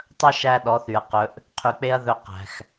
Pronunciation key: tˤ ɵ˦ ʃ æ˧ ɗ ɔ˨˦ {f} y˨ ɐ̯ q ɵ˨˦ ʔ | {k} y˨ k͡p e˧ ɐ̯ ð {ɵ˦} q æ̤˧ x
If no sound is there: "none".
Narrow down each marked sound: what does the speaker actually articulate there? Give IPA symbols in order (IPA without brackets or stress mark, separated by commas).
θ, qʰ, ɵ˦